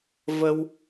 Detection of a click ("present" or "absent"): absent